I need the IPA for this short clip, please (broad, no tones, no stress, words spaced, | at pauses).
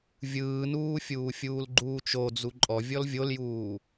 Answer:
vʲɯːnuː fʲuːfʲuːlɡ͡ǃuːt͡ʃo d͡zuǃʼɔ vʲɔlvʲoljuː